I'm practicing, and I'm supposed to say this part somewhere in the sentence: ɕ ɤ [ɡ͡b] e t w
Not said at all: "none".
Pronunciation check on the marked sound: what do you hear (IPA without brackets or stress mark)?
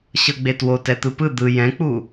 ɡ͡b